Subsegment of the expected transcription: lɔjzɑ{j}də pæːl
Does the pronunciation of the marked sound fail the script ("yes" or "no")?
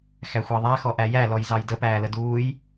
no